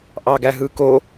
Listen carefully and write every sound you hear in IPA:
ʔɑɡæɦɯko

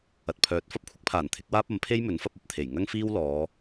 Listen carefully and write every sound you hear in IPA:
ɐ˨t̚pʰœː˨t̚ fɐ˥p̚kʷʰɪ˨˥k̚pʰaː˨˩n t̪ʰɪ˨˥k̚waː˥p̚ɐ˨˥m pʰe˥jmɵ˨˥nfɐ˧p̚ ɐ˨p̚t̪ʰe˨˩j ŋɐ˥ŋfiː˥w lɔː˨˧

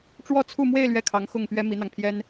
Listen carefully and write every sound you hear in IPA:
ʈ͡ʂwɔ˥˧t͡sʰu˥˧mwe˥˧ɪ̯ lɥɛ˥˩kʰɑ˧˥ŋxʊ˥˩ŋpɥɛ˥ mi˧˥n̪ɑ˧ŋ pʰjɛ˥n

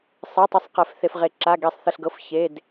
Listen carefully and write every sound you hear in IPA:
sˤi˩˧˩tˤe˨˦sˤqɛ˩f θe˩fʁe˩ǁa˩˧˩ ɡe˨˩˦sˤθə˩˧˩ɬɡɤ˩˧˩f çe˩˧˩d

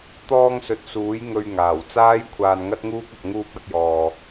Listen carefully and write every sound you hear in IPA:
t̪ɔː˧ŋsɵ˨t̚suː˨˥j ŋɵ˧ɥ ŋaː˨˩wt͡saː˥j kʷʰaː˧nŋɐ˥t̚ŋuː˥k̚ɐ˧k̚ ŋuː˧p̚ɐ˧t̚jɔː˨

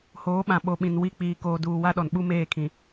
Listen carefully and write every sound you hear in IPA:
hoː˨˦ɓã˨ ɓo˨ɓĩ˨n wi˦k͡piː˨ koː˨duː˨ wa˦ɗɔ˨n ɓu˦meː˦˨kʰĩ˨

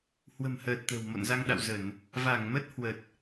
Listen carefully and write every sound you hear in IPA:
hwə̤˨˩mhəː˨˩t̚ t̪ə̤˨˩wmo̰˧˨nza˧ŋɗa̰˧˨w zə˧˩˨n | va˧˩ŋmə˦˥t̚ hwə˨˩t̚

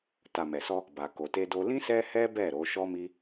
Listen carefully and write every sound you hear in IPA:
ta˨ mɛ˨sɔ˧ | ba˨ko˨te˧do˧ lĩ˦ sɛ˦hɛ˦bɛ˦˨ ɾo˨˦ ʃɔ˦mi˦

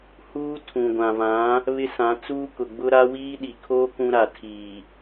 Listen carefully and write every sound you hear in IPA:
huː˦tʰũ˨ɡʷã˨vã˨˦ | βɪ˦sã˨˦t͡suː˦ kʊ˨ɡ͡bʊ˦ɾa˦ wiː˦ɗi˨kʰoː˦ kũ˦ɾa˨ tʰiː˨

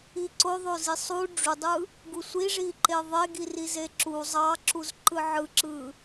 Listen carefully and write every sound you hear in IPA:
iǀo ðˤozisˤu ɖ͡ʐudˤɯ | ɡusʷiʐiǃe ðˤeɡi rizeǁu zˤɑǁuzǃɯ ʕɯǁɯ

